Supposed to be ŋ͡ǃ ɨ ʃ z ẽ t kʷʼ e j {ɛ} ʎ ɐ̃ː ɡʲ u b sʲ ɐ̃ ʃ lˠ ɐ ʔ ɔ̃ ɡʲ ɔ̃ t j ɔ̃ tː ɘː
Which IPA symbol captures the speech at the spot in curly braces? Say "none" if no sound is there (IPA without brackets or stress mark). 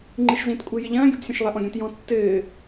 ɘ